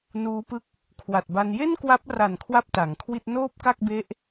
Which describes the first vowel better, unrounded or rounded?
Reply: rounded